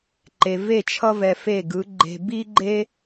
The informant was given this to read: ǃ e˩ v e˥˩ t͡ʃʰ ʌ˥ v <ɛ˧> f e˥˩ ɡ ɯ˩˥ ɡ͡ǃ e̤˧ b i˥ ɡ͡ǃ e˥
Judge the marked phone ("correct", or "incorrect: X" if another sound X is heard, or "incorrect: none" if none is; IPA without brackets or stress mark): correct